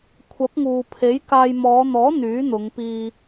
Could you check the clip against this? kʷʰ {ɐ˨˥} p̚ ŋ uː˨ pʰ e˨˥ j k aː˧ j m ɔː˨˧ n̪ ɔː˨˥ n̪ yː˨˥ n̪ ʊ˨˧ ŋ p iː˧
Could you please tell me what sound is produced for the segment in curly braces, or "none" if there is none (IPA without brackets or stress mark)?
ɐ˨˥